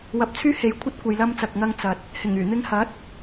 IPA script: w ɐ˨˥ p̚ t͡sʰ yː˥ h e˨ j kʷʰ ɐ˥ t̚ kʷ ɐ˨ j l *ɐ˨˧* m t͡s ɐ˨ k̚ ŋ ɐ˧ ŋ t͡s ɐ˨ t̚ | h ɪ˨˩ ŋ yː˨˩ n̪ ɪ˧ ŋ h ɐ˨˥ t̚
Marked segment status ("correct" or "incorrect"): incorrect